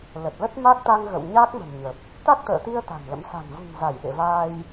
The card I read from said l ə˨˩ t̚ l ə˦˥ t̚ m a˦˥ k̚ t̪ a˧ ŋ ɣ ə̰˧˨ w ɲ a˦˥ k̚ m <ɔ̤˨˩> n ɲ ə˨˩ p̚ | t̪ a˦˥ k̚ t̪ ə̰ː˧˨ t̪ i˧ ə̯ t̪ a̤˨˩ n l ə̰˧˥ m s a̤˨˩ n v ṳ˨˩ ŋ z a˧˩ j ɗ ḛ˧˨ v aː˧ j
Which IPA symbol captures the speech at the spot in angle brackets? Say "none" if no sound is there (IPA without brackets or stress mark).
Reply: ə̤˨˩